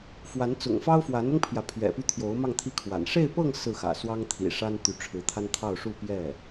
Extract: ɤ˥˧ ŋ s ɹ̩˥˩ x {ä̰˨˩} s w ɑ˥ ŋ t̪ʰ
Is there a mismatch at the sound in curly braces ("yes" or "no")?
no